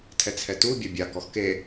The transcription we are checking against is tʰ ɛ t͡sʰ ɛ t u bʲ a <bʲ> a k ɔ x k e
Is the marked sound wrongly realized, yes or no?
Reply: no